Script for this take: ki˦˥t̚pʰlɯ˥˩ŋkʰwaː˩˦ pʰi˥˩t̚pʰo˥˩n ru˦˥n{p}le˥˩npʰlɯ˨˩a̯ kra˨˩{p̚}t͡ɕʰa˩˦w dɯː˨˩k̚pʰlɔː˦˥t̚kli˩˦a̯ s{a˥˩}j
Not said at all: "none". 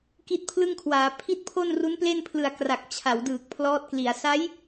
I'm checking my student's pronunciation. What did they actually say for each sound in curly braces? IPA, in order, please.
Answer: p, k̚, a˦˥

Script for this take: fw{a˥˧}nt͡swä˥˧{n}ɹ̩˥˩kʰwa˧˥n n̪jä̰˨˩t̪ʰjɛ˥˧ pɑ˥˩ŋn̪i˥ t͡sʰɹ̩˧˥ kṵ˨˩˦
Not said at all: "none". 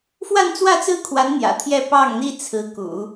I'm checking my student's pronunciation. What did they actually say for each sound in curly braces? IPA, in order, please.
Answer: a˥˧, t͡s

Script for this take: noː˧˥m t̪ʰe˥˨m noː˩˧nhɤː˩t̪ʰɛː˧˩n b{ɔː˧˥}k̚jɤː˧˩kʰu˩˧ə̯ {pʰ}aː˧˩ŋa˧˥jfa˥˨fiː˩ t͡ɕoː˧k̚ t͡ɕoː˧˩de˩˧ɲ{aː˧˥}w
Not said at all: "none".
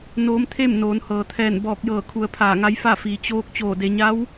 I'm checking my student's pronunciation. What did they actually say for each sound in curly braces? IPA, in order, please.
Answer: ɔː˧˩, pʰ, a˧˥

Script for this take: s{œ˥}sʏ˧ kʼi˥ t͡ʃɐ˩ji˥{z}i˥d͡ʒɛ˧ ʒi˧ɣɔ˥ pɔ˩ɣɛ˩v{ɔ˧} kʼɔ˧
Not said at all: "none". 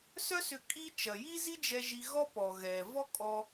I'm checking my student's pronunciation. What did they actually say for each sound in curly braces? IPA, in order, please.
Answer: œ˥, z, ɔ˥

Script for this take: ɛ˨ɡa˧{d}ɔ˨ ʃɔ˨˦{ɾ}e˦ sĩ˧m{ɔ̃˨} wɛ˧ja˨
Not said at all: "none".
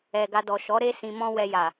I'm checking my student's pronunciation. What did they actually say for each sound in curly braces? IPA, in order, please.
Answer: d, ɾ, ɔ̃˦

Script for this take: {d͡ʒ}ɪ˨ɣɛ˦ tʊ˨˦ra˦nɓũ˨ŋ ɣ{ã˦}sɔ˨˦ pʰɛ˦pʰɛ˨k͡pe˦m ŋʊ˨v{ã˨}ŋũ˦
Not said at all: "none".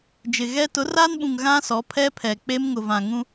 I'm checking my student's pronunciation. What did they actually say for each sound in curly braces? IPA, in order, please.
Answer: d͡ʒ, ã˦, ã˨

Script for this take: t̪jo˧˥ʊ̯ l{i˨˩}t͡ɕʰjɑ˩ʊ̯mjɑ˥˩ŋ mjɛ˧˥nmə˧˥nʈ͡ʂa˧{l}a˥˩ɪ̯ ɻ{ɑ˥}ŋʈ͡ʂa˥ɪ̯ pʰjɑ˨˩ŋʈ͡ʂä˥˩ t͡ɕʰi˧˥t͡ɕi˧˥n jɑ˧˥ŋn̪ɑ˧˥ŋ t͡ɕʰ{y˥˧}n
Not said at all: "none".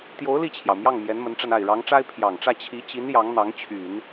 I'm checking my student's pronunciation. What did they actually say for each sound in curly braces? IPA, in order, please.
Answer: i˥˩, n, ɑ˧˥, y˨˩˦

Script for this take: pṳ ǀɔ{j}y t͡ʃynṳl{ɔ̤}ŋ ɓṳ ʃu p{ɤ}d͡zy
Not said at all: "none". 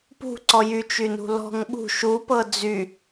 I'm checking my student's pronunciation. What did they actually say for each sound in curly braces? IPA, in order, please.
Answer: j, ɔ̤, ɤ

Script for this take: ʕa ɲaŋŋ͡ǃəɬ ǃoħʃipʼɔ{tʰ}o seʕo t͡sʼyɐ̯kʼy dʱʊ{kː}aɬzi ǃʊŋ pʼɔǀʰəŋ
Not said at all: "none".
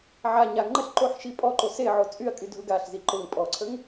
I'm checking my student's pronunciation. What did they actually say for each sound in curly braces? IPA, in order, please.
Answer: ǃ, ɡ

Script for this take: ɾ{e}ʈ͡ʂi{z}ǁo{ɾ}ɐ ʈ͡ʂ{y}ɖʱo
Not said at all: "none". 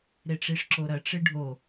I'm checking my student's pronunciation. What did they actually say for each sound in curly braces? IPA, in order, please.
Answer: e, ʂ, ɾ, ɨ

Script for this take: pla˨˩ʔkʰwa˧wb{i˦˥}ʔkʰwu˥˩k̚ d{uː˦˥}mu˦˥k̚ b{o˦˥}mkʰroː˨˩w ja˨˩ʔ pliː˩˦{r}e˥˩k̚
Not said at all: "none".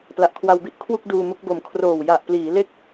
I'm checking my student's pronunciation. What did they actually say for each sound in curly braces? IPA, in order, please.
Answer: i˥˩, uː˧, o˨˩, l

